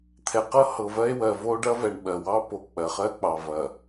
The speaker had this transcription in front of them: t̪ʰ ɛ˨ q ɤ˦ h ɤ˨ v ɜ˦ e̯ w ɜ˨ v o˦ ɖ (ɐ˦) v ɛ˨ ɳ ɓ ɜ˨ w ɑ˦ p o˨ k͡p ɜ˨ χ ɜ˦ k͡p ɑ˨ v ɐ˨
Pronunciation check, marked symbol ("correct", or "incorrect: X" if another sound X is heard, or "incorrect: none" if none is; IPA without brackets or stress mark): correct